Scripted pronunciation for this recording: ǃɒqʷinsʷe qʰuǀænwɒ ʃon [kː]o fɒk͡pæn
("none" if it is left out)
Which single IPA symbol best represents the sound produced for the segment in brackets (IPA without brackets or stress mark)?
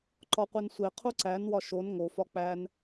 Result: ŋ